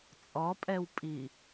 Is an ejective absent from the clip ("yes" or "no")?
no